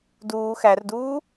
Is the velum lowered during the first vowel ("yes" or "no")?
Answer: no